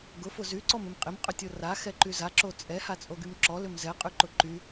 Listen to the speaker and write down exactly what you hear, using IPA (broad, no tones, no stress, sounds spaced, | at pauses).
ɡ ʊ f ʊ z y ǀ ɔ m ɪ m qʼ ɪ m qʼ ʏ tʲ o r a x ɛ ǃ y z a ǁ o t͡sʼ ɛ h a t͡sʼ o ɡ y m ǁ ɔ l ʏ m z ɛ qʼ y ǃ ʊ ǃ y